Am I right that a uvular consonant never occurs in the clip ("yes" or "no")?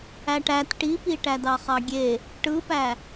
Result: no